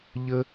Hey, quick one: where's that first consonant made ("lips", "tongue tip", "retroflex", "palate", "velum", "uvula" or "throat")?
palate